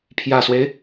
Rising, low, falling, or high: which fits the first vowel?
low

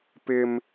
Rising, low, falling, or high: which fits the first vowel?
high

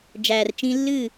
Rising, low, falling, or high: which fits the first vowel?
low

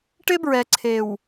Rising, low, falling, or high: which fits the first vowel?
high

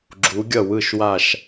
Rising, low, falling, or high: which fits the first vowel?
rising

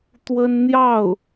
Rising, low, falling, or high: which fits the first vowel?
high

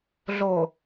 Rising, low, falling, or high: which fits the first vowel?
low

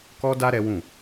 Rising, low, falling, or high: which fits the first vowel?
high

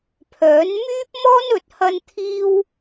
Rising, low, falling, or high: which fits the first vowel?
rising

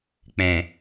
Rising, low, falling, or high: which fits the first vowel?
low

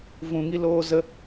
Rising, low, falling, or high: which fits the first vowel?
low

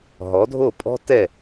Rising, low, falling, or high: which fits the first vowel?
rising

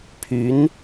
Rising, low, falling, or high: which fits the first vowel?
rising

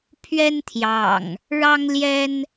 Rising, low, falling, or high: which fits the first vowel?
high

